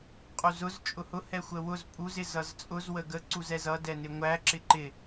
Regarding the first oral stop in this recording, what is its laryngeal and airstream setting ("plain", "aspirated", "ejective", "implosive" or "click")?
ejective